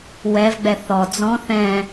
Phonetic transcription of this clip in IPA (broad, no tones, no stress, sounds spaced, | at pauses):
w ɛ v ɡ͡b ɛ θ ɔ d͡z ɔ̃ θ ɛ̃